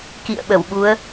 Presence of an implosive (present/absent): present